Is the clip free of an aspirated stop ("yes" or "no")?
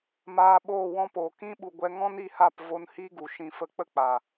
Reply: yes